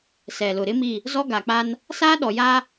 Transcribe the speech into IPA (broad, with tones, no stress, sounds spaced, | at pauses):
s ɛ˨ l ʊ˨ ɾ ɪ˦ m i˦˨ | z ɔ˦ ɡ a˨ k͡p a˦ n | s aː˦ ɗ ɔ˨ j aː˦